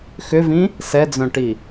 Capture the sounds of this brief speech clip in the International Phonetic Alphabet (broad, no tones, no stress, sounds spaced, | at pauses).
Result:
x ʏ v ĩ | s ɛ d͡z œ̃ ʈ i